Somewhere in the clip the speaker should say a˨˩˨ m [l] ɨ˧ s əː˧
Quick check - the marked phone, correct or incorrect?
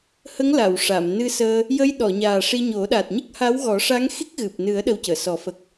incorrect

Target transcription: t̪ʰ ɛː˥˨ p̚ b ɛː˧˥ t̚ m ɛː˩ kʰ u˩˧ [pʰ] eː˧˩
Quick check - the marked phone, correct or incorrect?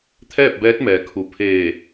correct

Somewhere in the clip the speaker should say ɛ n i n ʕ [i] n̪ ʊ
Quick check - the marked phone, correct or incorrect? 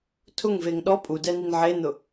incorrect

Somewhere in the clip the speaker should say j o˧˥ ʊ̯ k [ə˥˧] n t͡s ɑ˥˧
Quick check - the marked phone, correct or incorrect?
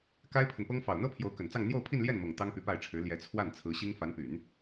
incorrect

